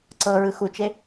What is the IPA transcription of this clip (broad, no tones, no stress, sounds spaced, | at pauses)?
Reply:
ǀ ɤ ɹ ɯ x u t͡ʃ e